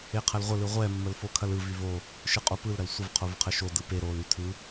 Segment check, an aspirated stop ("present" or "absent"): present